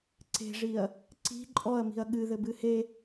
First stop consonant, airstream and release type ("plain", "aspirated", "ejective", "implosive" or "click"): click